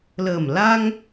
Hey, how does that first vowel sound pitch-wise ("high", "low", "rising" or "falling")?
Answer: low